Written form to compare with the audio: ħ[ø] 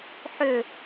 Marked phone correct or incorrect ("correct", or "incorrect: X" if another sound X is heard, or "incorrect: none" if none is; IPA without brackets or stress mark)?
correct